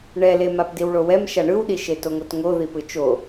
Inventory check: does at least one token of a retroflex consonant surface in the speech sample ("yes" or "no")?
yes